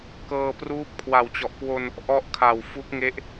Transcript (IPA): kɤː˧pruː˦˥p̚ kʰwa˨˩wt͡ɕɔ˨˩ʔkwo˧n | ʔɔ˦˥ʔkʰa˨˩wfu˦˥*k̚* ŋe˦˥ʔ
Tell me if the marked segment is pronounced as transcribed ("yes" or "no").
yes